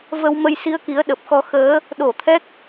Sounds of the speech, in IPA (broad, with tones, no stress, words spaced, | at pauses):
və˧wmə˧j si˧ə̯ki˨˦ə̯ɗə˨˩p̚xɔ˧ xəː˨˦ | ɗo˧˩t̪ʰɛ˦˥k̚